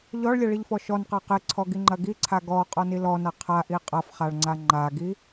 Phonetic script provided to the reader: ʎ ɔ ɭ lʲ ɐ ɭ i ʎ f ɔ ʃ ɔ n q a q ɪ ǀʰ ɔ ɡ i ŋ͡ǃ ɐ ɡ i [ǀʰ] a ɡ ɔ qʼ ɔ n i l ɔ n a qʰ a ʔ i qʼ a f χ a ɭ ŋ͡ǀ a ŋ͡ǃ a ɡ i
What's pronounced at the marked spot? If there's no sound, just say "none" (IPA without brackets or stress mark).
ǀʰ